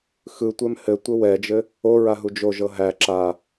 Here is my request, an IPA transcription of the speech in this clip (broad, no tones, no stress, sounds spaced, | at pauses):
x ɯ tʷ ɛ m h ɘ tʷ ɘ w ɛ d͡ʒ ɘ | o ɹ a ɦ u d͡ʒ o ʒ ɤ ɦ æ ǁ a